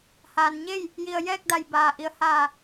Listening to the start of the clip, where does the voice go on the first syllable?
low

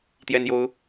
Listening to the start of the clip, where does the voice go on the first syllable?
high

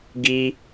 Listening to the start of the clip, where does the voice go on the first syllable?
high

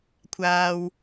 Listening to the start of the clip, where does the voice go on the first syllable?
high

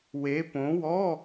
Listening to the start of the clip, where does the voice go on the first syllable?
rising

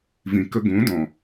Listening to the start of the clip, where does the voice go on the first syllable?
low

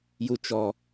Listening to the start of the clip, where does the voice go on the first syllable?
low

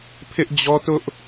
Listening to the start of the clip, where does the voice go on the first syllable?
high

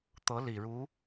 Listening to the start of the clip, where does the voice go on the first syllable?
rising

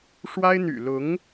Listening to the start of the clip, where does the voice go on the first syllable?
high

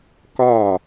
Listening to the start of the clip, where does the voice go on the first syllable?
falling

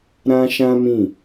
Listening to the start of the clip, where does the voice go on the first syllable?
high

